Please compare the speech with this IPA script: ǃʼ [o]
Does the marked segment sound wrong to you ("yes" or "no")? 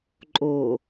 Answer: no